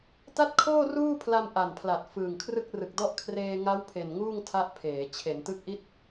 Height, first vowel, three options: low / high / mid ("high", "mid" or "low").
low